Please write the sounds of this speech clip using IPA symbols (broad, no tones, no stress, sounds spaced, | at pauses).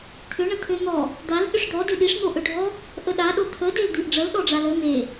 t̪ʰ ʏ ɳ ə t̪ʰ ø n̪ ɔ | d̪ a l ɗ ʏ ʂ d̪ ɔ d ʏ ɗ i ʂ n̪ o ʔ ø ɖʱ ɔ | ʔ ə ɗ a ɗ o t̪ʰ ə d e l d̪ i ʔ ɖ͡ʐ ə l ɗ ɔ ɖ͡ʐ a l ə n̪ e